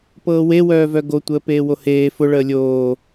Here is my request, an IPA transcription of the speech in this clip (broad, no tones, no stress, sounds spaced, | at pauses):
p ɤː w e w œː v œ ɡ o tʷ əː p eː w o h eː f ʊ ɭ əː lʲ oː